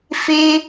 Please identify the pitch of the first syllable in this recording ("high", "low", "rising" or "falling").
high